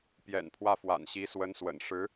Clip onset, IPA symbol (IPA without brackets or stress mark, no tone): p